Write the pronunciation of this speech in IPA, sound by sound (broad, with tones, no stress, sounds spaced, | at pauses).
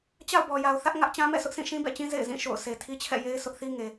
t͡ɕ a̰˦˨ ʊ̯ b ɔ˨ j a˨ ʊ̯ θ ä˦ ʔ ŋ ä˦ ʔ t͡ɕ ã˦ m ɛ̰˦˨ sʰ ʊ˦ ʔ sʰ ĩ˦˨ ʃ ĩ˦ b ɛ̰˦˨ t͡ɕ ĩ˦ z ḛ˦˨ ɪ̯ z ĩ˦˨ ʃ o̰˦˨ ʊ̯ s e˨ tʰ i˦ t͡ɕʰ ɛ̰˦˨ j e˦ ɪ̯ sʰ ʊ˦ ʔ θ i˦ ŋ e˨